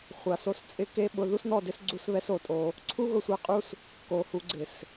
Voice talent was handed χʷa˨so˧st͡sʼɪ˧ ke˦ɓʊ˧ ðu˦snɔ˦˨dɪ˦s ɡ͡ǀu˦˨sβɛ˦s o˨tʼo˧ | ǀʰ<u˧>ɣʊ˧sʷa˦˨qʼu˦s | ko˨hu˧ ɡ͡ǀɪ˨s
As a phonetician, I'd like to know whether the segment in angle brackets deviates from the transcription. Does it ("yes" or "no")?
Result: yes